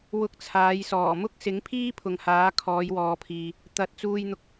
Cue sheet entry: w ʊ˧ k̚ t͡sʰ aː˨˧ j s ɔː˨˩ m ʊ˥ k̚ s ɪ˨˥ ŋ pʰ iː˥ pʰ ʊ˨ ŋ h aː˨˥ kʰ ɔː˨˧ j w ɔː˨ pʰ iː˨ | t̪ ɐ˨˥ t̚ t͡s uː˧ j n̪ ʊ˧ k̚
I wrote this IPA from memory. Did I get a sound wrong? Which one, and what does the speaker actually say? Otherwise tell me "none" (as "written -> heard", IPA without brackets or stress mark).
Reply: none